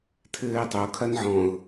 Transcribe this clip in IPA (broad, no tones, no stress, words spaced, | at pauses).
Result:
tʰɘːɪ̯tˤo kʰɐnʕɔ̃ʊ̯